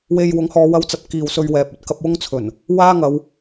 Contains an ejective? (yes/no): no